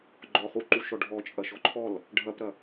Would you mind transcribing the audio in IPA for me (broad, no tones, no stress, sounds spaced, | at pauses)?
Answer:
ɡ͡ǃ ɔ χ u ǃ u ʃ ɔ ɖʱ ɔ t͡ʃʼ ɐ ʃ ɔ ǃʰ ɔ l | ɖʱ ɐ p ɾ ɐ